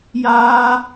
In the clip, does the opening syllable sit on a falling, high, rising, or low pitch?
high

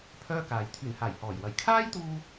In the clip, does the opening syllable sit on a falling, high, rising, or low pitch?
high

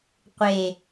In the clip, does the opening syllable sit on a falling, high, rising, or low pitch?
low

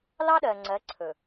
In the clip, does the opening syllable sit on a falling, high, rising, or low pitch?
high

